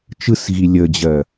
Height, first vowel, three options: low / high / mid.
high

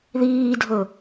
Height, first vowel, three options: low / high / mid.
high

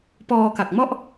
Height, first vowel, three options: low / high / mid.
mid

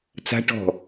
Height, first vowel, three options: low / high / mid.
low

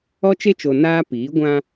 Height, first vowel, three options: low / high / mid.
mid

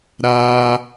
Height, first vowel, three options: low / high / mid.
low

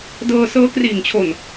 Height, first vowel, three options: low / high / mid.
mid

